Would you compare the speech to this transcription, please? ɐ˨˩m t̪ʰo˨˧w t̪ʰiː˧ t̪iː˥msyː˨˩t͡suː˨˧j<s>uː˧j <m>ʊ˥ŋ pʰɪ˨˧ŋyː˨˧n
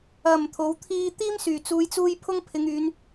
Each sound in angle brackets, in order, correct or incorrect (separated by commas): incorrect, incorrect